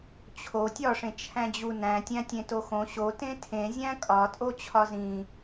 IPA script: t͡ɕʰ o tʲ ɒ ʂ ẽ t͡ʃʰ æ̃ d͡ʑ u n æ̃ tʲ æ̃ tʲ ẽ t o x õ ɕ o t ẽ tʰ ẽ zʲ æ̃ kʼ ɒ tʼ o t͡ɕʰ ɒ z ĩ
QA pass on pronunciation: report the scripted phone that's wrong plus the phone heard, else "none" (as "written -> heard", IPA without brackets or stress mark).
none